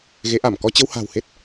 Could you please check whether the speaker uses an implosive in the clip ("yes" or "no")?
no